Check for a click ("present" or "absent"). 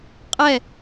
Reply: absent